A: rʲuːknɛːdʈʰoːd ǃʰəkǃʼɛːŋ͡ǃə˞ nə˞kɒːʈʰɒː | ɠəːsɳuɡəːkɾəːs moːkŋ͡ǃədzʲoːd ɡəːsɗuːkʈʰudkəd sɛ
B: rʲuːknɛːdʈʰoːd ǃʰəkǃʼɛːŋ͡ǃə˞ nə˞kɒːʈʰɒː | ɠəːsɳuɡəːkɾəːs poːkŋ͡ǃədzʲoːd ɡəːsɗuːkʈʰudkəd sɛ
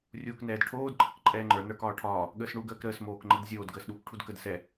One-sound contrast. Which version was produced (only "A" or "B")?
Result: A